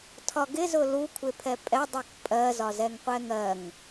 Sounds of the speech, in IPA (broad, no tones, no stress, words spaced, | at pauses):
tʰɒɡɪ zʊlu kʷʰɪpʰɛpʼɛ dˤukpʼɜ zɒzɛŋqʷɛŋɜŋ